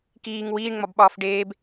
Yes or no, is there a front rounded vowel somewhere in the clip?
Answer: no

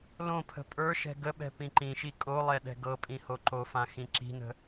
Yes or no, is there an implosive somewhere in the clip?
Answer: yes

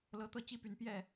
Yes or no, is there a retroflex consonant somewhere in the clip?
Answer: no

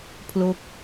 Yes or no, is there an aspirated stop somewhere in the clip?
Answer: yes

